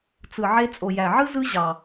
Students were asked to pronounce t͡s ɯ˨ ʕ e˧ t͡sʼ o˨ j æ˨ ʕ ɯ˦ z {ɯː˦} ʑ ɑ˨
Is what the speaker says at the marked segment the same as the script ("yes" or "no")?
no